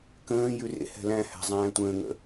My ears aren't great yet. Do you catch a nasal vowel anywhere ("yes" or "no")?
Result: yes